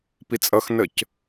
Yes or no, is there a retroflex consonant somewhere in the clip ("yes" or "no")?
no